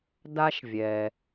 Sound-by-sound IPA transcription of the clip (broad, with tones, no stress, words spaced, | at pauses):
da˦ʃvʲɛː˩